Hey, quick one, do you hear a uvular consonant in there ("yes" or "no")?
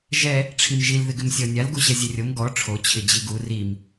no